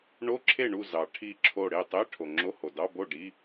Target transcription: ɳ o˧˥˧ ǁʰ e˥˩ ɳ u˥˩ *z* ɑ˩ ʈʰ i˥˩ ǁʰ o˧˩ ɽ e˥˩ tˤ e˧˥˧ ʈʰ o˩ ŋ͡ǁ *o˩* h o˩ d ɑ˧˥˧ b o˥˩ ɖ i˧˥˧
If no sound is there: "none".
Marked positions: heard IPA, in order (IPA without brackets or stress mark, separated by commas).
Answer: z, o˧˥˧